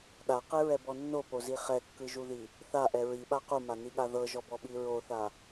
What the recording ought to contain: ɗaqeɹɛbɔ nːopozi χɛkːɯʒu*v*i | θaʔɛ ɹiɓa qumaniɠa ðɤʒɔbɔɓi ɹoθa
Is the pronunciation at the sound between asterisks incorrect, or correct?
incorrect